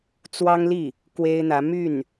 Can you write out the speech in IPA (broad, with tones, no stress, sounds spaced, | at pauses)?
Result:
t͡s w ɑ˥ ŋ l i˥˩ | k w e˥ ɪ̯ n̪ ä˧˥ m y˥˩ n